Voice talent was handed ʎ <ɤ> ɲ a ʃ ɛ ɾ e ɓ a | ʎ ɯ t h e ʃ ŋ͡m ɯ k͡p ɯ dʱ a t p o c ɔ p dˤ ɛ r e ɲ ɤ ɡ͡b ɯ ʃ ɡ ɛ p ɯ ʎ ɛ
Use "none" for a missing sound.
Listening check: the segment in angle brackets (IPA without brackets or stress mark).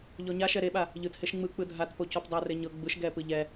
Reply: ɔ